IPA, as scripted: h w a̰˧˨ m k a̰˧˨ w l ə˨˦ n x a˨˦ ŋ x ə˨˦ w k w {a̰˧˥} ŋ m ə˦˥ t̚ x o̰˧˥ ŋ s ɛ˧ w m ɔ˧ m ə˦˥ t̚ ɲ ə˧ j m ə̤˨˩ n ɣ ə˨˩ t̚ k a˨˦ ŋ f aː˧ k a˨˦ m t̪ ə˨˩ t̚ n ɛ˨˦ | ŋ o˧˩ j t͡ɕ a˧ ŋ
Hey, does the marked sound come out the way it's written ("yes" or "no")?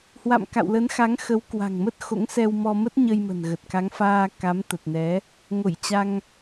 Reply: no